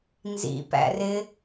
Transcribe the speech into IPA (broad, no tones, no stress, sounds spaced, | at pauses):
n z ḭ p æ̰ r ɪ